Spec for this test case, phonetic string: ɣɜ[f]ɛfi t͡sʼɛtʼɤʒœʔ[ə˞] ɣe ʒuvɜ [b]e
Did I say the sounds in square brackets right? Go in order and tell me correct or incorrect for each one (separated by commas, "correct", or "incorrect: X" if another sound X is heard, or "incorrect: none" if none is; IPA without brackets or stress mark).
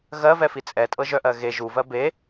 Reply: incorrect: v, incorrect: ɜ, correct